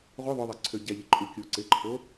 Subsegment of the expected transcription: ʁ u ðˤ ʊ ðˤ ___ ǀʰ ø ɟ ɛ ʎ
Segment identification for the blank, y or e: e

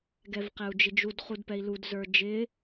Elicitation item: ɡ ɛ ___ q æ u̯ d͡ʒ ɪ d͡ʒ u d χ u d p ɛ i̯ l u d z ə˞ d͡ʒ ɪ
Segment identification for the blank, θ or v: v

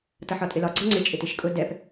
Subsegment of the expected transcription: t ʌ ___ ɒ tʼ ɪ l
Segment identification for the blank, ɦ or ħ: ħ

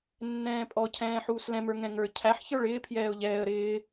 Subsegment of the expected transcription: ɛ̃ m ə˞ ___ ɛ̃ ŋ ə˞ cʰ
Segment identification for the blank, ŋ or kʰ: ŋ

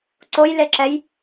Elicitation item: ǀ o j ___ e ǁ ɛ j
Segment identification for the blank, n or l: l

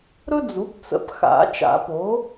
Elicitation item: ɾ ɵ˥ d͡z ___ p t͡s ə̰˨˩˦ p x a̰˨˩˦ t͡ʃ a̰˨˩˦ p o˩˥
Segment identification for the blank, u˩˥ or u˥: u˩˥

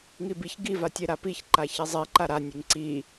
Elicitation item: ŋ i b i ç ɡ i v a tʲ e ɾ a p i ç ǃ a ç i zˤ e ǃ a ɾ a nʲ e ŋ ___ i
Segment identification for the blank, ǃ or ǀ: ǀ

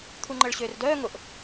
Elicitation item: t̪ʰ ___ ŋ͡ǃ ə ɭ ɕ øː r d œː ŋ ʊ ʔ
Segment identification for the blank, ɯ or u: u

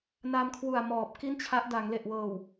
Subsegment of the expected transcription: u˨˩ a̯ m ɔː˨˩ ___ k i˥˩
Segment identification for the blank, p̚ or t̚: p̚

